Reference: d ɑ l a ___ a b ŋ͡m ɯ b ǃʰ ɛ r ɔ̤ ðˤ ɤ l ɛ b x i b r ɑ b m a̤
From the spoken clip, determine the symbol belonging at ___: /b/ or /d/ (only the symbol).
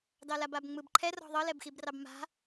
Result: b